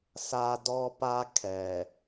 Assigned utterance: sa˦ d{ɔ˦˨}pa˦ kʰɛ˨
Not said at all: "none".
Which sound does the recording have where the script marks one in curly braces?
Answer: ɔ˦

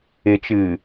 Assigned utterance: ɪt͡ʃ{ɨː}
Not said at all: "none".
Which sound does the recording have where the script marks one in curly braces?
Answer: ɨː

